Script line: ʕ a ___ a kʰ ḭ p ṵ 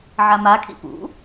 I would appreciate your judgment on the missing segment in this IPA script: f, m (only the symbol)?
m